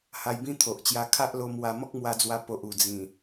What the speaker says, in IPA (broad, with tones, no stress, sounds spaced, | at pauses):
h a˧ j b ĩ˦ t̪ʰ o˨ ʔ t͡ɕ j a˧ kʰ a˦ ʔ l o˧ m w a˧ m ɔ˦ k̚ m w a˧ d͡z w a˧ p o˨ ʔ u˨˩ d͡z ĩ˨˩